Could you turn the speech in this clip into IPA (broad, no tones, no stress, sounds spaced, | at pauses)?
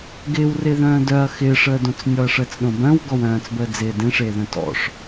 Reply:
ɡ ɪː w r ɪː ð œ̃ː d œ ɐ̯ x ɪː ʂ əː d õ t͡s nʲ ɔ ɐ̯ ʂ əː t͡s ɗ õ b œ̃ w ɡ ɔ w œ̃ː t͡s b əː d͡z ɪː d ẽ ʂ eː ð œ̃ t ɔ̰ ʂ